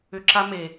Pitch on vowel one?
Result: low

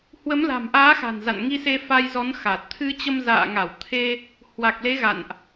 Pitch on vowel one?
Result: rising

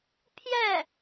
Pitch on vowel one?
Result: falling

